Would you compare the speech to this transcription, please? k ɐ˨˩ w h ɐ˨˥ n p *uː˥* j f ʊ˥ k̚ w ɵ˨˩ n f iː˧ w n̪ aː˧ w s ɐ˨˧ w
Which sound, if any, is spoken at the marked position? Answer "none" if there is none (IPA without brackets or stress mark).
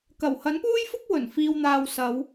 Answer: uː˥